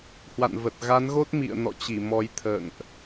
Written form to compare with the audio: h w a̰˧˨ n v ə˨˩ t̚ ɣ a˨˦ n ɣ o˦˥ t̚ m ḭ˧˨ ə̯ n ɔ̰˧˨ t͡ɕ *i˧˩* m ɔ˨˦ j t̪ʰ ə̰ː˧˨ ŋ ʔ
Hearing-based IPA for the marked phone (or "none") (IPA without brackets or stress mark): i˧˩